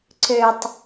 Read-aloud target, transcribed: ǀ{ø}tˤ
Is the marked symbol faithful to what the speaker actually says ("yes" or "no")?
yes